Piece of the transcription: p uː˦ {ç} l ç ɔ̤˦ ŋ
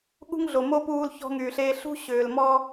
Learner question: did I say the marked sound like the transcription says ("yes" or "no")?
no